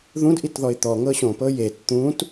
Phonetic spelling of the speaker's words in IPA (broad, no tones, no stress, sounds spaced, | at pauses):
ð ũ d ʔ i t ð ɔ ɪ̯ t̪ ɔ ŋ ɤ ɕ õ p ɤ j e t t̪ ũ t